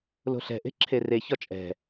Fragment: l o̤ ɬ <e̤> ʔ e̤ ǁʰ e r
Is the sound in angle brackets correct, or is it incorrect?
incorrect: ɛ̤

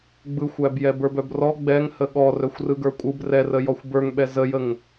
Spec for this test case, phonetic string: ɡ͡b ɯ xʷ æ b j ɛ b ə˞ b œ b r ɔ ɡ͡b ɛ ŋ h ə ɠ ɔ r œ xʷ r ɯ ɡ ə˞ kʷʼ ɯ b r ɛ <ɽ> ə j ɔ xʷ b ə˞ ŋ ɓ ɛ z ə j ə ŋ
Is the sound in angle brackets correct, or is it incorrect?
incorrect: r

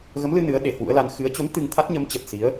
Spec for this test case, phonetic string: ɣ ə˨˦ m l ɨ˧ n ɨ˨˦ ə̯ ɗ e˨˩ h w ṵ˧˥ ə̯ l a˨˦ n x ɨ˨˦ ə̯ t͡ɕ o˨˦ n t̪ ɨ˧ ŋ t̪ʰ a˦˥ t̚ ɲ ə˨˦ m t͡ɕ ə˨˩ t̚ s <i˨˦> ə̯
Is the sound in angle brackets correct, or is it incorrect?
correct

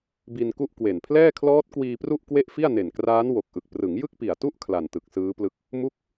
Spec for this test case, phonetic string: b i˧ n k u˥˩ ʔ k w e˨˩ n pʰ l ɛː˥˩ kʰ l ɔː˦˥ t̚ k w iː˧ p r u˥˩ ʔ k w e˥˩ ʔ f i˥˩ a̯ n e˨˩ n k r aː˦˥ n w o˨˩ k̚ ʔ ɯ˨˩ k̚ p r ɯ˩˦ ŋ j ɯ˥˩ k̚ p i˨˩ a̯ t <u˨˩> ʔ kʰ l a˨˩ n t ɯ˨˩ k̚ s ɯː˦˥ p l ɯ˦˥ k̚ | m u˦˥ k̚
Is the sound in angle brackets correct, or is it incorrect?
incorrect: u˥˩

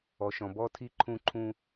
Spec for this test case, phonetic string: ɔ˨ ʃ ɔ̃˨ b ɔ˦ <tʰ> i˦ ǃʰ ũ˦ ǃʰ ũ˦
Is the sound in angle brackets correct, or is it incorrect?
correct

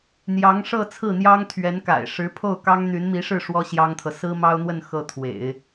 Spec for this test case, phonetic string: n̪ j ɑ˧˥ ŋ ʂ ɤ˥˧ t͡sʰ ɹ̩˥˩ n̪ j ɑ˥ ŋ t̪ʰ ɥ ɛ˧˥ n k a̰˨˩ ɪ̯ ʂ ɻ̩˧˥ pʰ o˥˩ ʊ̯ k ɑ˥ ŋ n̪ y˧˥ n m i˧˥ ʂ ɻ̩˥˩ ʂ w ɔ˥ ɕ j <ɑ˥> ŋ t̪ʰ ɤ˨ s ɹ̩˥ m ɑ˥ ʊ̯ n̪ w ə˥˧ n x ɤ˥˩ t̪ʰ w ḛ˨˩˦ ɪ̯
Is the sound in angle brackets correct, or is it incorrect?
correct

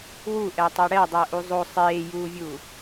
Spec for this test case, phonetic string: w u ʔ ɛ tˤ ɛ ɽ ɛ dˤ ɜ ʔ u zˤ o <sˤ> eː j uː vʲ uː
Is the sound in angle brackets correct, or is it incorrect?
correct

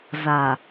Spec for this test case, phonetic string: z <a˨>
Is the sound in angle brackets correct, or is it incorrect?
correct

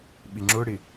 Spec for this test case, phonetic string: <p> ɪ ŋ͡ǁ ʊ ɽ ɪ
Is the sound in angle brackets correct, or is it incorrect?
incorrect: ɓ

